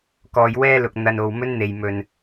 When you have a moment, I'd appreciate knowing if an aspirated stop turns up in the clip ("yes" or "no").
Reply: no